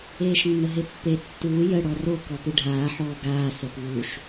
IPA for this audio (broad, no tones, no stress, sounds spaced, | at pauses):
eː ʃ nː ə ɦ e pː e tː uː j ə ɽ ɔ r o k ɔ p ɨ ɖʱ aː ħ ɔː ɡ aː s o p β u ʃ